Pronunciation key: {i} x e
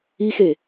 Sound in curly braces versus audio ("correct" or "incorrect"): correct